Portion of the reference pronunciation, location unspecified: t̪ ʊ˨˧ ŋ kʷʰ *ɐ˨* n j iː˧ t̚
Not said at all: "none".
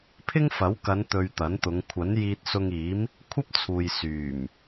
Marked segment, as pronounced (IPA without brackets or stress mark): ɐ˨˥